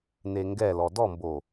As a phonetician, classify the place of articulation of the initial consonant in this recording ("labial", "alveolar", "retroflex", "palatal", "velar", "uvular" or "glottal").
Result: alveolar